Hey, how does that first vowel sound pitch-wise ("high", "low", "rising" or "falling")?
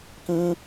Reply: high